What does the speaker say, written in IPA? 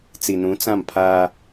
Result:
t͡s i˨ n ũ˨˦ t͡s ã˦˨ m pʰ aː˦

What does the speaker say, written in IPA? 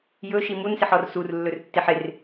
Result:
j ɵ ʃ i m u n s ɪ ħ ɔ r s u r lː ɵ r tː ɪ ħ ɪ r

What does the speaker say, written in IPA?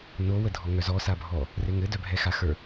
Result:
n o w ə dʱ ɔ ŋ œ z ɔ s a bʱ ɔ | r e ŋ ɘ d œ bʱ ɛ x a x ə˞

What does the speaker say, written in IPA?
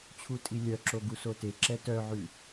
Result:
t͡ɕʰ u tʼ i lʲ œ ǁ o ɡ u s o t e ǁ ɛ t œ ʕ ʉ

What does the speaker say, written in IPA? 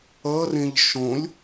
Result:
ʌ r ẽ ʎ ʃ õ lʲ

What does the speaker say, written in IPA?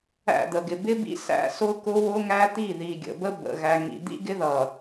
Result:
æ̰˦˨ d̪ ə˨ ɡ ɪ˨ b ɪ˦ b ḭ˦ s æ̰˦ s ʊ˦ k ʊ˦ w ʊ˦ ŋ æ˦ t̪ i˦˨ ð i˨ ɡʲ ə̰˨ b ə˦ b ə̰˨ ɣ æ˨ ŋ ḭ˨ d̪ ḭ˦ ɡ ɪ˦ ð ʌ˨

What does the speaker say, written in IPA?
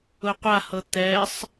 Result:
ʊ qʷ a h ɤ t̪ ɛ sˤ

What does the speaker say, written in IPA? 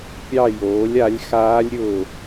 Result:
pʲ ɑ˦˨ j oː˩˥ lʲ a˩˥ lʲ x aː˦˥ lʲ ɾʲ ʊː˦˨

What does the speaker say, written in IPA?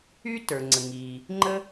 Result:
y˥ t ə˞˩ ŋ͡ǀ ə˩ ŋ i˩ | ŋ͡ǃ ə˥

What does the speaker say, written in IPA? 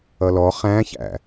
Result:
ʌ l ɔ χ æ̃ ç æ̰

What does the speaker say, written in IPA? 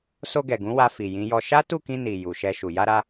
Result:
s o˧ ɡ ɛ˨ ɡ ũ˨˦ w a˧ f i˨ j ĩ˨˦ j ɔ˧ ʃ a˦ t u˦˨ k ĩ˧ n i˨ j u˨ ʃ ɛ˧ ʃ u˨ j a˧ ɾ a˧

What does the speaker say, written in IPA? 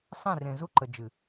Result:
sˤ ẽ˦˨ r ẽ˨ z u˦ ǃ ə˨ d͡ʒ ɨ˨

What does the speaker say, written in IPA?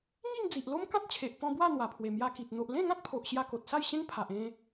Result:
ŋ i˥˧ ŋ d͡z i˨ ʔ l o˦ m k ã˦ t̚ t͡ɕʰ e˨ ʔ p ɔ̃˧ b w a˥˧ n̪ w a˨˩ pʰ w e˨˩ m j a˧ k i˨ t̚ n̪ o˨ ʔ l ẽ˥˧ ŋ ã˦ t̚ pʰ o˨ ʔ ɕ j a˧ k o˨ t̚ s a˥˧ j ɕ ẽ˦ ŋ pʰ a˨ ʔ ẽ˧

